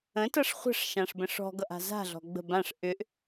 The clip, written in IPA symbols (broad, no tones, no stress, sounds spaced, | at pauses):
ə̃ t ʌ ʂ χʷ ə̤ ʂ ʃ ã ʂ b ə̃ ʂ ɔ̤ ɡ ʌ ʔ a̤ z a̤ ɮ ɔ̤ ɡ͡b ə̤ b ã ʂ ʔ ʏ ʔ